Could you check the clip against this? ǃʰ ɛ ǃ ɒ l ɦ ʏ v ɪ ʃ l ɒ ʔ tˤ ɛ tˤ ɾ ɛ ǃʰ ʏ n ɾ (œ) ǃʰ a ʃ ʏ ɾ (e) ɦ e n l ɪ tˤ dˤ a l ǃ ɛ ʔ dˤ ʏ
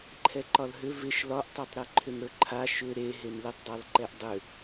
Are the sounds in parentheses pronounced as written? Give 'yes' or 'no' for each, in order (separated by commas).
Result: no, yes